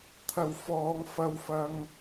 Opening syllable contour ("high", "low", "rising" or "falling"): low